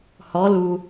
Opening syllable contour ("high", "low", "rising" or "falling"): rising